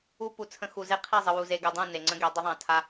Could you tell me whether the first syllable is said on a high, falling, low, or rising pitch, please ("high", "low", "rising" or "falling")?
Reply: high